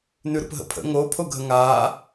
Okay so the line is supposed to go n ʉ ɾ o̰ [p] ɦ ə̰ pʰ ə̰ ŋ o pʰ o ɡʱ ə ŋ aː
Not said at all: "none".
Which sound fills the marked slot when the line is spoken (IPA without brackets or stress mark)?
p